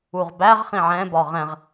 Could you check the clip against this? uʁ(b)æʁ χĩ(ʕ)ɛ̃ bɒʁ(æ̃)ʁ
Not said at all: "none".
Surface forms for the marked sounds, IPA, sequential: b, ʕ, ɛ̃

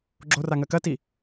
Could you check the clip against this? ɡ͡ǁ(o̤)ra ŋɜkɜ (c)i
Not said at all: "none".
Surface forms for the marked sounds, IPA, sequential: o, t

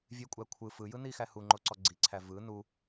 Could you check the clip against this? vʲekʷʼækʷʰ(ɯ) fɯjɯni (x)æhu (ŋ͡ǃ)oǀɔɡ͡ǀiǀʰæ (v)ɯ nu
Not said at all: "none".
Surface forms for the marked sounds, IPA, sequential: ɯ, x, ŋ͡ǃ, v

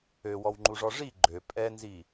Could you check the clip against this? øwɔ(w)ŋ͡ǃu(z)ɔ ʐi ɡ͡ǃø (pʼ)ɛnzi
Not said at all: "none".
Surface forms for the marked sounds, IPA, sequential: w, ʐ, pʼ

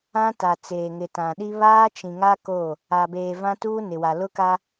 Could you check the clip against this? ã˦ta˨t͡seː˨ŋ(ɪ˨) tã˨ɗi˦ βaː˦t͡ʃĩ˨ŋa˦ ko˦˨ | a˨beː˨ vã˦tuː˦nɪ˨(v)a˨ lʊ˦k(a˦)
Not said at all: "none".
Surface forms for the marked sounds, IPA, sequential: ɪ˨, w, a˦

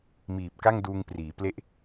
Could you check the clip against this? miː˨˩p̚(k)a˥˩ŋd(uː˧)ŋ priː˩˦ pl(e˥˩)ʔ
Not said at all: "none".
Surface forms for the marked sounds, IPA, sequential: k, uː˧, e˥˩

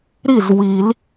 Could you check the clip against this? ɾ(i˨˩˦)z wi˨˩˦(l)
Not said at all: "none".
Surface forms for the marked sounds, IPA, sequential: i˥˩, l

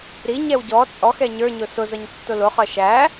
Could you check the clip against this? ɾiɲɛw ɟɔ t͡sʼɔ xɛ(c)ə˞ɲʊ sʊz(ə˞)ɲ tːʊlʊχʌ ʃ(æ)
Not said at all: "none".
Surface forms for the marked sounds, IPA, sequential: ɲ, ʌ, æ

